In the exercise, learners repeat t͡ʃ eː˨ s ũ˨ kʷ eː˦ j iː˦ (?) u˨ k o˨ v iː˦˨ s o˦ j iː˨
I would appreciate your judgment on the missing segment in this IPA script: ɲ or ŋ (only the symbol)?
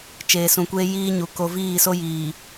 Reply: ɲ